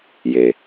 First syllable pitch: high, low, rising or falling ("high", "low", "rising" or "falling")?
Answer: low